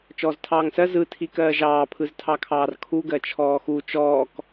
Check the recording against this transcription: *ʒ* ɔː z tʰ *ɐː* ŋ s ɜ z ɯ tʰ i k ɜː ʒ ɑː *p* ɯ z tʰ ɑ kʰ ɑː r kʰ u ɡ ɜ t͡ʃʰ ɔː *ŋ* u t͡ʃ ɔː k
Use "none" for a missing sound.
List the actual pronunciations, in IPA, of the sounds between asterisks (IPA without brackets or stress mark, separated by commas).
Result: t͡ʃ, ɑː, pʰ, x